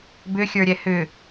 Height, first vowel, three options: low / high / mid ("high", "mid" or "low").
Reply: high